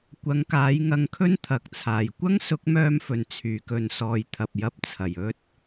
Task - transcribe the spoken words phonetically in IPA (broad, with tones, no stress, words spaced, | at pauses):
kʷɐ˨˥ŋkaː˨˥jŋɐ˧ŋkʰɵ˥n t̪ʰɐ˨˥k̚t͡sʰaː˨j kʷɐ˥ŋsʊ˨˥k̚mœː˧mfɵ˨˩n t͡sʰyː˨˩kɵ˨nsɔː˨j t̪ʰɐ˨p̚jɐ˧p̚t͡sʰɐ˨˩j ɵ˧t̚